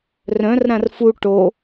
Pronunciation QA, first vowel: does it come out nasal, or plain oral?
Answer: nasal